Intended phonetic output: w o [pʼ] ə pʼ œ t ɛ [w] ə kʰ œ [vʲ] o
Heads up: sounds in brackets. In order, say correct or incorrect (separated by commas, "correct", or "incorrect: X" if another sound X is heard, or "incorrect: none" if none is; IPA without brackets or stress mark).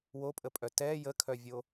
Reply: correct, incorrect: j, correct